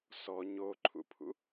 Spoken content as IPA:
sɔ ɲoǃʰṵpʰṵ

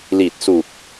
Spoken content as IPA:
li˨˩t̚su˨˩k̚

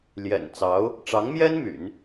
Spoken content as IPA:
ljɛ̰˨˩nt͡sɑ˧˥ʊ̯ | ʈ͡ʂɑ˧˥ŋmjɛ˥n my̰˨˩˦n

